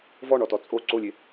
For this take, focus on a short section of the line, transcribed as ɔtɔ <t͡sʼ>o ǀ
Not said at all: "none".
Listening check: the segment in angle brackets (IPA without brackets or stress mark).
t͡sʼ